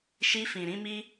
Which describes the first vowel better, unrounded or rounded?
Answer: unrounded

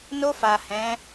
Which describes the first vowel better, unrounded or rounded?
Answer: rounded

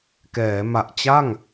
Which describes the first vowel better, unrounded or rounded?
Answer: unrounded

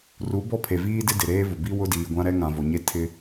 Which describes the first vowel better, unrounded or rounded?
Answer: rounded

